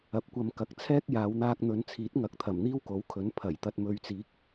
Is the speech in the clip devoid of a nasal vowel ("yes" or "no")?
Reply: yes